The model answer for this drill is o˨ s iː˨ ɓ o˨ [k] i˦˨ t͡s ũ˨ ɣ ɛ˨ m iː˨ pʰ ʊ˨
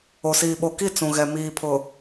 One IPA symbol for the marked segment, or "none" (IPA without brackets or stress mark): k